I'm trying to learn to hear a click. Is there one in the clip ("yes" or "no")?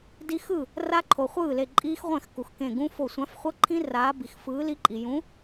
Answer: yes